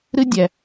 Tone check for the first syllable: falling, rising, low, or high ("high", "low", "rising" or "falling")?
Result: high